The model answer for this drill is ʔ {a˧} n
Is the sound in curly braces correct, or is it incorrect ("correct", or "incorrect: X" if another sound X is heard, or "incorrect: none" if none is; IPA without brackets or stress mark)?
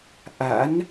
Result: incorrect: a̰˧˥